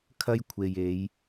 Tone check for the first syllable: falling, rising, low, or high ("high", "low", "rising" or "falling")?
high